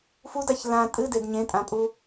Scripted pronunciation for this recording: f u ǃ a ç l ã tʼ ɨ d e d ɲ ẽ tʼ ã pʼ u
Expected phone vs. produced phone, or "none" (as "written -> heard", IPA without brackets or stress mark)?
ǃ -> d